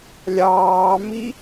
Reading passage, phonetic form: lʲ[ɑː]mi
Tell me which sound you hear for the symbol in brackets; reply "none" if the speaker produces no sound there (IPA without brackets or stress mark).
ɑː